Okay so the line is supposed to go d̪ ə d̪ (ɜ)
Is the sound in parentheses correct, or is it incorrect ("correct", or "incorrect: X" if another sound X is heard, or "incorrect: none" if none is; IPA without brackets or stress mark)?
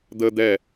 incorrect: ɛ